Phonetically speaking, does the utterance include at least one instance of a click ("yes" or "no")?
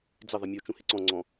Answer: yes